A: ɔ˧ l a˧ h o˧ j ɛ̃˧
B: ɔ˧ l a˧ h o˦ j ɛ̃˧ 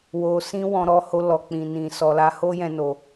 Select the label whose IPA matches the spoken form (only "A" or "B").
B